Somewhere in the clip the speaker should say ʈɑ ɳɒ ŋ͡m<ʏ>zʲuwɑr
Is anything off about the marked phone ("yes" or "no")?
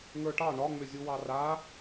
no